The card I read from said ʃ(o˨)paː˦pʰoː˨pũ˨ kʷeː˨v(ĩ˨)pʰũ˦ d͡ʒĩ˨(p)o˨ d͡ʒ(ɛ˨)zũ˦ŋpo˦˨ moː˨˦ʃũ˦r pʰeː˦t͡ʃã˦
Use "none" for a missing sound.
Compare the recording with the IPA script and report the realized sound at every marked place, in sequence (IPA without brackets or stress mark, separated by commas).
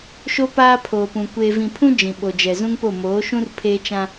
o˦, ĩ˨, ɓ, ɛ˨